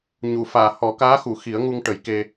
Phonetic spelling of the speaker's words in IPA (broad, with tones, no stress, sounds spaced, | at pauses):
ɲ u˨˩˨ f aː˨˩˨ h ɔ˨˩˦ k aː˧˥ x u˨˩˨ x i˨˩˦ ə̯ ŋ u˧ ŋ ʈ ə˨˩˦ j k e˧